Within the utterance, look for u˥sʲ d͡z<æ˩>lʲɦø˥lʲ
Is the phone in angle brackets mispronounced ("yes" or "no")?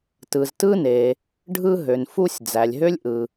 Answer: no